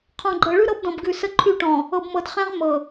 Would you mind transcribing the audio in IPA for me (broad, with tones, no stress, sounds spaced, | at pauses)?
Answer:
qʰ ɔ̃˨ ɡ͡ǃ ɤ˨ ɭ ʉ˦ ɾ ɤ˦ b d ɔ̃˨ b ɡ ʉ˨ s ə˦ ǃʰ y˦˨ ʈ ɔ̃˨ | ɤ˨ b m ɤ˨ d χ ẽ˦ ʁ m ɤ˨